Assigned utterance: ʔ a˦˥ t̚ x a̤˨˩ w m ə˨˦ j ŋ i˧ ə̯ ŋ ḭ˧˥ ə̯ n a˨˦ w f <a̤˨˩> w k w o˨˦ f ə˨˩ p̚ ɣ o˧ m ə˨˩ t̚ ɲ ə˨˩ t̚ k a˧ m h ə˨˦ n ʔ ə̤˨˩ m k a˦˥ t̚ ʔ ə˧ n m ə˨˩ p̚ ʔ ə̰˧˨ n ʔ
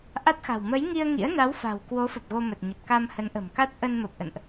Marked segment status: correct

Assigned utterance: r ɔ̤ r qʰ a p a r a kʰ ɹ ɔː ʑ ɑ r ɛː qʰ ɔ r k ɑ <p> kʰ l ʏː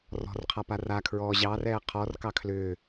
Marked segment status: incorrect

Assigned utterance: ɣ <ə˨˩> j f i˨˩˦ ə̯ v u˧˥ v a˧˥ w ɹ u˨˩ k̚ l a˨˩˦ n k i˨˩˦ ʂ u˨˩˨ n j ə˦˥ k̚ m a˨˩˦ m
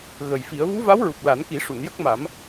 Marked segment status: correct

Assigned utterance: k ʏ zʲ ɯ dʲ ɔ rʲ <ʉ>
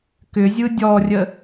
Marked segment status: incorrect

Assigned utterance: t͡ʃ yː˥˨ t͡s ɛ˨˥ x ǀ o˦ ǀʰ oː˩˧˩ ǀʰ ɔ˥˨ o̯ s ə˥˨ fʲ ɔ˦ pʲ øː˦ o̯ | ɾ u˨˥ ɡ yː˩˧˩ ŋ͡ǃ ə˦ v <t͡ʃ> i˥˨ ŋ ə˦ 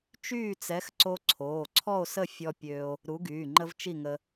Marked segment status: correct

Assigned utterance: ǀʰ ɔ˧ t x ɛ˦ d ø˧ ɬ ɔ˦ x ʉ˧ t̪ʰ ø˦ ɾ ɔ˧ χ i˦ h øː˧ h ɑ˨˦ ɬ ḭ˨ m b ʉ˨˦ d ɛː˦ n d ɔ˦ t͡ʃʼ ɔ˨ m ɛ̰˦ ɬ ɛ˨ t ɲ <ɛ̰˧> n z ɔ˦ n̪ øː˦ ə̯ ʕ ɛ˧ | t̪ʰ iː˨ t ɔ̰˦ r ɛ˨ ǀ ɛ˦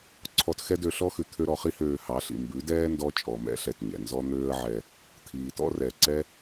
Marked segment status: incorrect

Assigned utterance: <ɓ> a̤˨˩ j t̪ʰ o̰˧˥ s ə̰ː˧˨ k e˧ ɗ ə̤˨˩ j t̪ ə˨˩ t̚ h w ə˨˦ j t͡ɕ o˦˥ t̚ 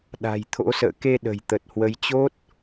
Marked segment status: incorrect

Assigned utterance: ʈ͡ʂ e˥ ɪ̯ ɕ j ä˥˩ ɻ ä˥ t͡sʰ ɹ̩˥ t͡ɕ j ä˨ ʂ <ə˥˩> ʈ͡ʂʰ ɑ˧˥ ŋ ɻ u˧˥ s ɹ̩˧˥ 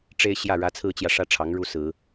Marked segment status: incorrect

